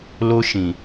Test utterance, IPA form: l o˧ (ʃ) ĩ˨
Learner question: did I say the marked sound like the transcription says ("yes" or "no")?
yes